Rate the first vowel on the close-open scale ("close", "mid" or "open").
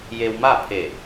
mid